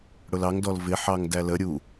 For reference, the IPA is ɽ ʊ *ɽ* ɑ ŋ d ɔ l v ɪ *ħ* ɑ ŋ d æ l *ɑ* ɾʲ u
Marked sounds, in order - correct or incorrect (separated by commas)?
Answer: incorrect, correct, incorrect